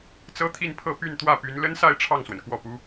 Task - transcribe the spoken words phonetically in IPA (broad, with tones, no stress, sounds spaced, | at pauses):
t͡s ɤ˥ t̪ʰ i˥˧ n pʰ ɤ˥˧ p y˥˧ n t̪ w ä˥˩ p y˧˥ n l ə˥ n s a˥˧ ɪ̯ ʈ͡ʂʰ ɑ˥˩ ŋ s w ə˩ n k w ɔ˥˩ p u˥